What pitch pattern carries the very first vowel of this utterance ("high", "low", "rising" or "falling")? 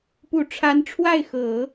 low